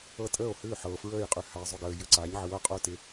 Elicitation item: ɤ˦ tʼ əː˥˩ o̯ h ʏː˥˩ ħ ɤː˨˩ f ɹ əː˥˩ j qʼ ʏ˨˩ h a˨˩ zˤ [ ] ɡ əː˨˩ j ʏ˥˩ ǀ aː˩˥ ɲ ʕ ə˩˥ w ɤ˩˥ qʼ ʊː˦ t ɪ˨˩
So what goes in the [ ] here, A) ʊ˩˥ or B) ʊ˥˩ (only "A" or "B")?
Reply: B